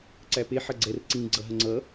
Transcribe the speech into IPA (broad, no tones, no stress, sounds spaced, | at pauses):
ǀ æ p e ħ ɐ ɡ͡ǀ ɛ r ǀ ĩ ɡ͡ǀ ʌ ɦ ə ŋ͡ǀ ʌ